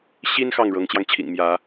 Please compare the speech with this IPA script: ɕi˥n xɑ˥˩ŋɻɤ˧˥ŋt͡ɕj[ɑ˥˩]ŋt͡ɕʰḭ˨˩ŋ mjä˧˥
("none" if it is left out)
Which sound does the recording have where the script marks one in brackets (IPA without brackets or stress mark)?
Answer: ɑ˧